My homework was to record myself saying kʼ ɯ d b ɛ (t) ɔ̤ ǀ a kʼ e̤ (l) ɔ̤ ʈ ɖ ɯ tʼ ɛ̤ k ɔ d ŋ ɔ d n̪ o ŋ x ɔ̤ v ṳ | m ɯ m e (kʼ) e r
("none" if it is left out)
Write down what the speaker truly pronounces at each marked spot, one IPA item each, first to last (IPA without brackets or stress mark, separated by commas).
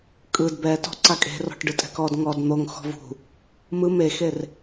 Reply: t, r, x